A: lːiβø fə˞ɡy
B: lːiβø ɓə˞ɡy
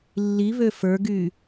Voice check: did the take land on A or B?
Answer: A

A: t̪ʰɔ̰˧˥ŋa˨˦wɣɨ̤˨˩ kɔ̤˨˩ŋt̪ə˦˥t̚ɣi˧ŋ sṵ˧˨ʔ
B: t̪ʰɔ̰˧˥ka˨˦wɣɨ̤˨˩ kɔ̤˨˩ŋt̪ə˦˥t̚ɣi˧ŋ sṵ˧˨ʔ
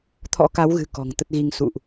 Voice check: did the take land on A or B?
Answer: B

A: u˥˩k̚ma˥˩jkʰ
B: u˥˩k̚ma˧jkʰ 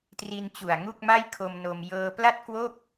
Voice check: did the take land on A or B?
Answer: A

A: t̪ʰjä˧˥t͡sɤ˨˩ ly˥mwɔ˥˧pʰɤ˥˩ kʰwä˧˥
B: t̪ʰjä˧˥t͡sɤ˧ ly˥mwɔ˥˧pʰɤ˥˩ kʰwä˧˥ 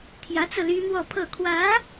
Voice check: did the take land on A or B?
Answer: B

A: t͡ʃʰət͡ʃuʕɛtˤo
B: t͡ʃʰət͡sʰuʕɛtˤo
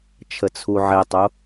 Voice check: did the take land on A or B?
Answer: B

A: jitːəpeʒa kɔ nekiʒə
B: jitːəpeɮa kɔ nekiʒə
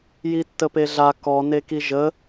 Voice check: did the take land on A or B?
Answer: B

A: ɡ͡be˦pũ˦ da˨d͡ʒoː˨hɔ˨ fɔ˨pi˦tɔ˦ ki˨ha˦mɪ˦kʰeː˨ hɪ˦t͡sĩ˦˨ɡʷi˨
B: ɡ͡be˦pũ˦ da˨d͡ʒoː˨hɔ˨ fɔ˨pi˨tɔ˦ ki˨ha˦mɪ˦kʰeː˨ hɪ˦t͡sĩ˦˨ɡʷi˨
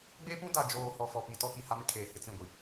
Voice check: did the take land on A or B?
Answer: B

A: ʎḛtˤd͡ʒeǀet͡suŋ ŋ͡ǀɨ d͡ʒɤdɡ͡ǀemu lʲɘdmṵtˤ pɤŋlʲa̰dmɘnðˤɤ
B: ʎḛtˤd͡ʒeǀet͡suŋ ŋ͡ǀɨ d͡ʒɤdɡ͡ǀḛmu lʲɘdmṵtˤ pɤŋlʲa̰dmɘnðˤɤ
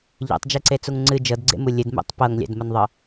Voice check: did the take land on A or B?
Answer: B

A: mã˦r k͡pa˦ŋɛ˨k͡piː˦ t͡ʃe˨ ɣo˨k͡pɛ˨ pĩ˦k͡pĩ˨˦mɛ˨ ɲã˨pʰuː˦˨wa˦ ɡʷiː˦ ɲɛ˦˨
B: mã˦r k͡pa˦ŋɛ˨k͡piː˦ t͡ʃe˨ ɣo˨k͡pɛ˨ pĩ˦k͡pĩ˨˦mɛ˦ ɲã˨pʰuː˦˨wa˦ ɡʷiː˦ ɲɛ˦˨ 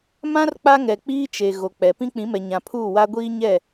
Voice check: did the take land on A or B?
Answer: A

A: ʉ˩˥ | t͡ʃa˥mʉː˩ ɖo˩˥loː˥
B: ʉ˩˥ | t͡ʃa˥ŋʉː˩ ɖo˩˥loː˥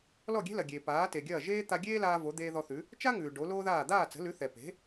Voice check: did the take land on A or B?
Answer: B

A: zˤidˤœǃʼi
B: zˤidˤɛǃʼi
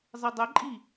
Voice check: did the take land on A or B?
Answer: B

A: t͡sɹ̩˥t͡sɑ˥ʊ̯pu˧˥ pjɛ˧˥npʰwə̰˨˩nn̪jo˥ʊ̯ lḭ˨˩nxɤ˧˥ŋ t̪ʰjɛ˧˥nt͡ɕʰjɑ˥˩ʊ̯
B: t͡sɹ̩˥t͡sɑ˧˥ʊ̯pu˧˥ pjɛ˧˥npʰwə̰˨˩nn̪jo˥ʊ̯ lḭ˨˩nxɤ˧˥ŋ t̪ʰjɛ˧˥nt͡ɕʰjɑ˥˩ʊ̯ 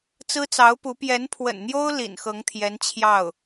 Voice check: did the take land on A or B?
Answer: B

